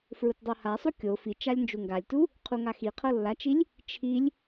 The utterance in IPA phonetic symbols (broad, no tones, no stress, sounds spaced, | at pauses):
f ɹ u t dˤ o h a sˤ u kʲ o f i t͡ʃ a lʲ n d͡ʒ u ŋ ɡ a lʲ t u | qʰ u ŋ a x i qʰ ɤ lː a t͡ʃ i lʲ | t͡ʃʰ i lʲ